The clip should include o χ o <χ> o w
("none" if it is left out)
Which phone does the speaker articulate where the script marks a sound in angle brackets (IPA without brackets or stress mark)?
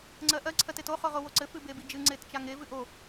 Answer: ʁ